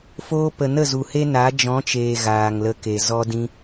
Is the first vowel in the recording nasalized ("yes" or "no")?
no